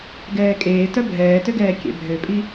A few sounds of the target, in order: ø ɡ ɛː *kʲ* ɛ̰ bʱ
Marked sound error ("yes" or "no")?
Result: no